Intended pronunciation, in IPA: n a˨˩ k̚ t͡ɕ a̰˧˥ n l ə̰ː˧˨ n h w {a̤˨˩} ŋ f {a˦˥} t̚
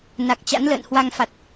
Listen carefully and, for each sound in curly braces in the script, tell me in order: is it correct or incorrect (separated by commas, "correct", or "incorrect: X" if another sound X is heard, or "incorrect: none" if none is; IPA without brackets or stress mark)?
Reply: incorrect: a˧, incorrect: a˨˩